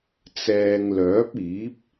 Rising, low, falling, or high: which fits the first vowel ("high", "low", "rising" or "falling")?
low